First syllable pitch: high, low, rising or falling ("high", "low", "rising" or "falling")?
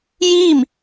falling